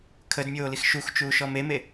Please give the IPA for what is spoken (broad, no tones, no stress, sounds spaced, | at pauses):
kʰ ə d mʲ oː l i x ʃ u x t͡ʃ uː ʃ ɔ m e m e